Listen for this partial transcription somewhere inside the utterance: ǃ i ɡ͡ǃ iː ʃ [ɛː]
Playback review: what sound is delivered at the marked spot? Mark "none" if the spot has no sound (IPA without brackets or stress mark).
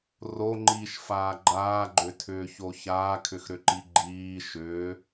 ʏː